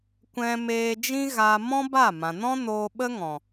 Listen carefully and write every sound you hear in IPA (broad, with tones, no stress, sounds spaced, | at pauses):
kʷ ɛ̃˧ m eː˧ d͡ʒ ĩ˦ ɣ a˧ m ɔ̃˦ b a˦˨ m ã˨ n ɔ̃˦ n oː˧ ɓ ə˦ ŋ ɔ̃˨